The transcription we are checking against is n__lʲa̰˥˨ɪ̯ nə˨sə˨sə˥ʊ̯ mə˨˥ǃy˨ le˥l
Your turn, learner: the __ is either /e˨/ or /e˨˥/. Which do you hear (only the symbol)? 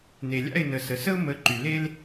e˨